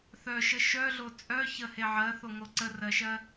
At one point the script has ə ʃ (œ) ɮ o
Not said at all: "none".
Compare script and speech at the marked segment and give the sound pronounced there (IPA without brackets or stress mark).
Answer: œ